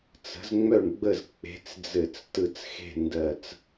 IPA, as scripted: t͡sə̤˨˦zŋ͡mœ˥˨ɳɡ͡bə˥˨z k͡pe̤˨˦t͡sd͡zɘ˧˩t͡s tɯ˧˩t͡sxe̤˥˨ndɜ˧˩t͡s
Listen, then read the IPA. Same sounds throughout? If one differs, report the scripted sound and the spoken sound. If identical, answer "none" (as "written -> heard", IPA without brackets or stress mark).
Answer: none